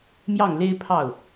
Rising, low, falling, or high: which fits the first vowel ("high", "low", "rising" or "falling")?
falling